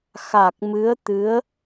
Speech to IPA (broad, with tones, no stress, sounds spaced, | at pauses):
x a˨˩ k̚ m ɨ˧˥ ə̯ t̪ ɨ˧˥ ə̯